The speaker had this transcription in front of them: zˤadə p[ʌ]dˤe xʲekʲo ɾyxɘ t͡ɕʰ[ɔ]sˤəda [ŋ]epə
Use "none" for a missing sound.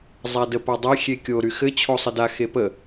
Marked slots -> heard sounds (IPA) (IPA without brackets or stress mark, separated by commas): a, o, x